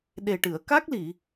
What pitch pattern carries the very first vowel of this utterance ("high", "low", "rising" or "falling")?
low